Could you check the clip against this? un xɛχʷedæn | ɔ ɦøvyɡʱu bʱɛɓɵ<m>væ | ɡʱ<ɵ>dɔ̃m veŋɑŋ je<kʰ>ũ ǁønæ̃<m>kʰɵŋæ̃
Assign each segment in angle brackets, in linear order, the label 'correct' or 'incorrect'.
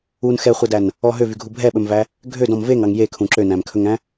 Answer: correct, incorrect: ø, correct, correct

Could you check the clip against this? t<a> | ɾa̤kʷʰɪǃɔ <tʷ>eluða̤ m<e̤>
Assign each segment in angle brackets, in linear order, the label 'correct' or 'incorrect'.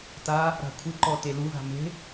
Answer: correct, incorrect: t, correct

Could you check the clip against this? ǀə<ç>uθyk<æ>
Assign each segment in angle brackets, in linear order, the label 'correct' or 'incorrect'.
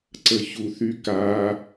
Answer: correct, incorrect: a

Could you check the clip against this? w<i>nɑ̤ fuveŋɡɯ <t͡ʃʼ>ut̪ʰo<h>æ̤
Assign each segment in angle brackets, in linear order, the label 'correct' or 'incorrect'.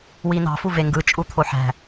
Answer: correct, correct, incorrect: ħ

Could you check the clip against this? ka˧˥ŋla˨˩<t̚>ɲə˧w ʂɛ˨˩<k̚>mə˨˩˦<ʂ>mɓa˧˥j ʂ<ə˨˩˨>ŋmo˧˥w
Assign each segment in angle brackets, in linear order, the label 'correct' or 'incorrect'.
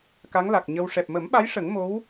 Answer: incorrect: k̚, incorrect: p̚, incorrect: none, incorrect: ə˨˩˦

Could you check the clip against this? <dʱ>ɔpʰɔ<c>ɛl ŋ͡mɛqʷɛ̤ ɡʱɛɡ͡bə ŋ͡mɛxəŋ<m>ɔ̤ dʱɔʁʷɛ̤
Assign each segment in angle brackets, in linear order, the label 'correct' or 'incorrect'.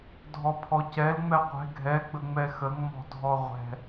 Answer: correct, correct, correct

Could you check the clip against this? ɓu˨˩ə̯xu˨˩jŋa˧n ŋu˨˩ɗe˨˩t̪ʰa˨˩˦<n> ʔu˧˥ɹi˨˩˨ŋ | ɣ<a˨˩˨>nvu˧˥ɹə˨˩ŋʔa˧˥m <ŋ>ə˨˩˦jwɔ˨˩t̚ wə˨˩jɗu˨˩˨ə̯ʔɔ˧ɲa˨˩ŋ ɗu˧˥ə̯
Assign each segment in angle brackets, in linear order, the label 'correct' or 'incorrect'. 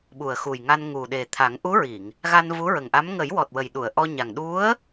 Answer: incorrect: ŋ, incorrect: a˧, correct

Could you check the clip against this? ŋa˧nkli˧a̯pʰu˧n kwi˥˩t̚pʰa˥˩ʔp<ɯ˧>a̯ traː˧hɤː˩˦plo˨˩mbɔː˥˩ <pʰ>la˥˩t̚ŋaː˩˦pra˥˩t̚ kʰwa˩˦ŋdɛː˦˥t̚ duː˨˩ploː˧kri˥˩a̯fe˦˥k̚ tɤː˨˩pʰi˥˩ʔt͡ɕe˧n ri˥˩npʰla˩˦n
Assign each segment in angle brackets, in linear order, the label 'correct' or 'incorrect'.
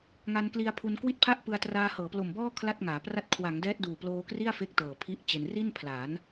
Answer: correct, incorrect: kʰ

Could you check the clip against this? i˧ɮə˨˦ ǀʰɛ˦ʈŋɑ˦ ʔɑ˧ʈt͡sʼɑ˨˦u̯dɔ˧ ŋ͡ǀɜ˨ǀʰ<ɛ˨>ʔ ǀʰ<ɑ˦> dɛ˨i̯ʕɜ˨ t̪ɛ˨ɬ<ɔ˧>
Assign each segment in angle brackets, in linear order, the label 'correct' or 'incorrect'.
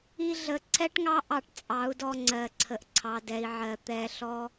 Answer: incorrect: ə˨, incorrect: ɑ˨, correct

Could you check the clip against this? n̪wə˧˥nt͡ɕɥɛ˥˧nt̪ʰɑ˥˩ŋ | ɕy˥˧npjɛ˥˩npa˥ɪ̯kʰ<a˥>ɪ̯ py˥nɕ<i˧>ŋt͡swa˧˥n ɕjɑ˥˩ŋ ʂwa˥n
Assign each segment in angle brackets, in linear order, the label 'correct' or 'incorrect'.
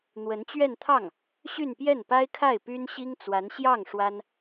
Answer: incorrect: a˥˩, incorrect: i˥

